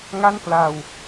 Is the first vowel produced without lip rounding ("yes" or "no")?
yes